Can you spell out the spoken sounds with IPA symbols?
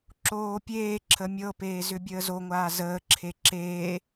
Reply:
ǁ oː pʲ eː ǁʰ ə mʲ ɤ p eː z ʏ bʲ əː z o ŋʷ aː z əː ǁʰ e ǁ eː

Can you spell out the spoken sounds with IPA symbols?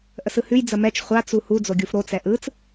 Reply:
ʔ ə s ɯ h ʉ j d͡z ə m ɛ t͡ʃ χʷ a t͡s u h u d͡z o ɡʲ u f ɾ o t͡s ɛ ʔ ɯ t͡s

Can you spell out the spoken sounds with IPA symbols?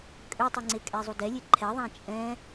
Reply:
kʼ ø tˤ ɛ ŋ͡ǀ e kʼ ɛ zˤ u d ɛ lʲ e ǃʰ ɛ ðˤ ã t͡ʃʼ ɛ̃

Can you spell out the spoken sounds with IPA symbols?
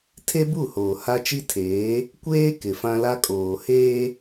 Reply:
tʰ e˦ b u˦˨ h oː˨ h a˦ t͡ʃ i˦ tʰ eː˨˦ | kʷ eː˦ k ɪ˨ f ã˦ l a˦ kʼ oː˨ h eː˦

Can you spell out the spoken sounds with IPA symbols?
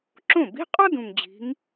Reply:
ǁ õ˥˩ b i̤˧˥˧ qʼ ɒ˥ d ũ˨˩ ŋ d͡ʑ i̤˨˦ ŋ

